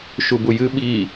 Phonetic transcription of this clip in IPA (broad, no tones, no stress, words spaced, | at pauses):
ʃubujɨ ɓi